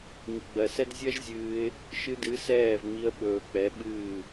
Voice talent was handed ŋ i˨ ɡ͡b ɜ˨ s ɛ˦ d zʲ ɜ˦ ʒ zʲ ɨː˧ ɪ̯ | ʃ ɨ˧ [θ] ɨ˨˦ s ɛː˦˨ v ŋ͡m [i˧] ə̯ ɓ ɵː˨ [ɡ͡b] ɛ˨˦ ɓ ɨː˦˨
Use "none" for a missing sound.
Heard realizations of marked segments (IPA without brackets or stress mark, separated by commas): d, i˧, k͡p